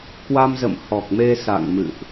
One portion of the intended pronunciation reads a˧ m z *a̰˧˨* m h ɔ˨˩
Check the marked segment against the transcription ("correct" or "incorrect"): incorrect